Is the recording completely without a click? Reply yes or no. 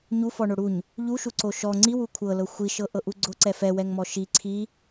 no